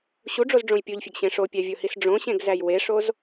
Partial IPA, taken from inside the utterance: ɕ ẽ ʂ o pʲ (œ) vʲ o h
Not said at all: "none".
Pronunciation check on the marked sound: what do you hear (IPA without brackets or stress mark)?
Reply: æ